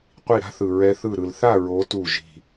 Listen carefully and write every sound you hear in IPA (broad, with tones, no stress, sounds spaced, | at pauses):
qʷ i˧˩ ɾ a̤˦ θ ɯ˩ ɹ ɛ˨˦ θ ɯ˧˩ ɾ ɯ˩ l θ a˥˨ ɹ o˨˦ t u˧˩ ʒ i̤˧˩